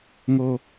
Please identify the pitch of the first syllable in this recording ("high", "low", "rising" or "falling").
high